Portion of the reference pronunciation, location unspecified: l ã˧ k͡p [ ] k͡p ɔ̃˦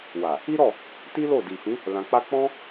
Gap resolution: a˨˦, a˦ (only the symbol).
a˦